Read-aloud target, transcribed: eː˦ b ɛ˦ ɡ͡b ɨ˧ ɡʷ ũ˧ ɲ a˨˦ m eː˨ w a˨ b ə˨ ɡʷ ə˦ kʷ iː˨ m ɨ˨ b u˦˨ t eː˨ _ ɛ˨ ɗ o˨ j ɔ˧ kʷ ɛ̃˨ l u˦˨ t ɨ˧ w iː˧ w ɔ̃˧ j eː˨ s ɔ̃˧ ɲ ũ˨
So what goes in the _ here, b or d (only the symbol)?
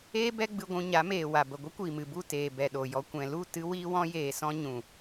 b